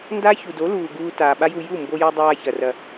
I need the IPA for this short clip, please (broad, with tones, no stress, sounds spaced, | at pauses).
n d a˦ ç u˨ d o˨˦ l uː˨ ɡ uː˧ t aː˨ ɓ a˦ j u˧ j u˦˨ m b o˧ j a˧ dˤ aː˧ ç ɐ˨ r ɐ˨